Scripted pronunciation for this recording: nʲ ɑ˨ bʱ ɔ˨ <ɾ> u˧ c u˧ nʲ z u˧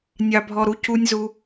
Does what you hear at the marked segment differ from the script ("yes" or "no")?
no